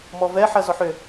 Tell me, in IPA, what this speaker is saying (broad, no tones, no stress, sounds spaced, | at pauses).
m ɔ v ɛ ħ ɐ z ɔ ħ ʏ